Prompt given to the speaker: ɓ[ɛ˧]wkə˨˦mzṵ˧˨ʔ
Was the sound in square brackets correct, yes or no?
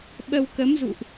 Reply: no